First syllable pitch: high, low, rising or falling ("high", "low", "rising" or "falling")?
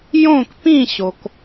falling